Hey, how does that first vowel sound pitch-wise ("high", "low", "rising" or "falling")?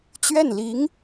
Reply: falling